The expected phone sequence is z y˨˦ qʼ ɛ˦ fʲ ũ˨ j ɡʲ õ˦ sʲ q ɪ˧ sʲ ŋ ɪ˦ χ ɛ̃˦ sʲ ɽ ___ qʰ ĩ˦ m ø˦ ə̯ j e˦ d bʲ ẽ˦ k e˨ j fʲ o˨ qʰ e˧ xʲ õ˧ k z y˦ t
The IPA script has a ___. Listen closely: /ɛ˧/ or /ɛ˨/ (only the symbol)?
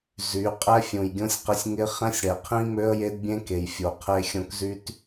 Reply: ɛ˨